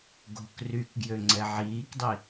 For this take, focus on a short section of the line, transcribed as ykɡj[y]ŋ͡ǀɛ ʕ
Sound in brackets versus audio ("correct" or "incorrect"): incorrect